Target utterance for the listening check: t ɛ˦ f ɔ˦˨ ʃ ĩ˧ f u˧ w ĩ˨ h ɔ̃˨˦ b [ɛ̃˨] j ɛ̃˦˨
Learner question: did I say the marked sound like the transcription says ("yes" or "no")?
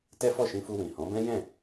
no